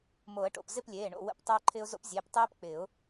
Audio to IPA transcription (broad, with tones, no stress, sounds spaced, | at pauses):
m o˨˩˦ ə̯ ʈ o̰˧˩ p z ɪ˥˨ p lʲ eː˩˧˩ ɳ o̰˧˩ w ə̰˨˩˦ p tˤ oː˦ ǃʰ ɪː˦ ʊ̯ z o̰˦ p zʲ eː˩˧˩ p tˤ eː˦ p k͡p ɪː˨˩˦ ʊ̯